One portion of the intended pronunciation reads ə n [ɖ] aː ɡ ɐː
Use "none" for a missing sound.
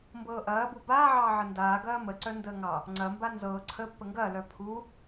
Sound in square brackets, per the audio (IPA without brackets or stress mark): d